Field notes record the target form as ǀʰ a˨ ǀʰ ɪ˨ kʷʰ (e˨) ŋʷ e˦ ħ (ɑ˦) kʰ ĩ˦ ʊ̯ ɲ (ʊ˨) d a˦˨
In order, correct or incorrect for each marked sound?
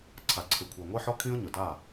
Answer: correct, incorrect: ɔ˦, correct

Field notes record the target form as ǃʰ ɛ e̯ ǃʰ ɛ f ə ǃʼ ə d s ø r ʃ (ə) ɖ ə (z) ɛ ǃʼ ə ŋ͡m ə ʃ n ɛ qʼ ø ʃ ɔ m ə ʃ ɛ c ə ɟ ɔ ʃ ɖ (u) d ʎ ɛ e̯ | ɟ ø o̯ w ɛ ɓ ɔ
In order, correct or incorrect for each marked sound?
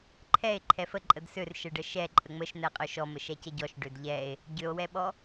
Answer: correct, incorrect: ʃ, incorrect: ø

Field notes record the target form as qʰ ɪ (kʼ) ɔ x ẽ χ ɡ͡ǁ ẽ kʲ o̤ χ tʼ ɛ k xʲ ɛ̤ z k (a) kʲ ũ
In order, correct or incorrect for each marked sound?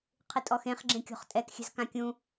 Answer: incorrect: tʼ, incorrect: ã

